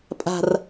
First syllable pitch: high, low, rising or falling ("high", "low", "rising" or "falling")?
low